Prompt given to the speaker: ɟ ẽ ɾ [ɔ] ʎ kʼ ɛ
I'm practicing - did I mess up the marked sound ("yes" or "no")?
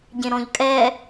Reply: yes